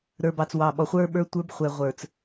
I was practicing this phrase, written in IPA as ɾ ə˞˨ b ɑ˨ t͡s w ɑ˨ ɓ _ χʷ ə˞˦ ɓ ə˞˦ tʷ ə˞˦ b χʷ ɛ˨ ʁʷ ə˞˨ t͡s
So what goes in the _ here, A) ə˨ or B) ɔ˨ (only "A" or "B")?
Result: B